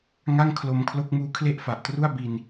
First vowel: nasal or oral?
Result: oral